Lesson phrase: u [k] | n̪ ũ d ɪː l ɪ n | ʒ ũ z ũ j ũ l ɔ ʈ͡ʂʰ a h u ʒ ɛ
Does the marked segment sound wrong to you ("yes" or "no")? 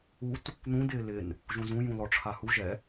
yes